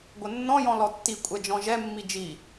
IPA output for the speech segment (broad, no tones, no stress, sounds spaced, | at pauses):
ɡʷ ə nː ɔ̃ j ɔ̃ l ɔ tː i kʷʼ ɛ d͡ʒ ɔ̃ ʒ ɛ mː i d͡ʒ i